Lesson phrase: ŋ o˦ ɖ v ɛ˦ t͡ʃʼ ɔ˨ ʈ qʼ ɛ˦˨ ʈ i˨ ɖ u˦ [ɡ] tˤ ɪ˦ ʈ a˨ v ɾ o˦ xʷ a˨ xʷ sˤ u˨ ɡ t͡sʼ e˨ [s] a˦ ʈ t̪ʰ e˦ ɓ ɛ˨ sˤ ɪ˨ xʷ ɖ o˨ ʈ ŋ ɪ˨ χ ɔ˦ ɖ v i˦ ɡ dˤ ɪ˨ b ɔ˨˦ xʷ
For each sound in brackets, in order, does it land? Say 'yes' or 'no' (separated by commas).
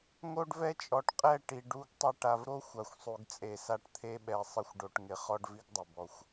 yes, yes